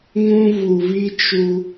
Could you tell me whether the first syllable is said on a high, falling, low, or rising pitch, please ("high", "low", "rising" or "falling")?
high